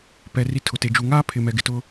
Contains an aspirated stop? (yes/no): yes